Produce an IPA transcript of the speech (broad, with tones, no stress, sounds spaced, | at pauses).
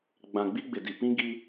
ɡ͡b ã˨ ɡ͡b i˦ ɡ͡b ɪ˨ d i˨ p ĩ˦ ɡ i˦